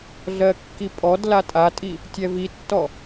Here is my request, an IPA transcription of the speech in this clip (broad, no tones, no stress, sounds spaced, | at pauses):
ɮ ɜ kː i pʼ ɔ d l a tʼ a tʼ i | tʲ ɛ v i tː ɔ